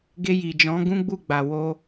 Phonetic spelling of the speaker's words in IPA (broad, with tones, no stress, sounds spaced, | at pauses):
ɡ e˧ j i˨ d͡ʒ ɔ̃˨˦ ɡ ũ˦ ɡ͡b u˦˨ ɡ͡b a˨ w o˧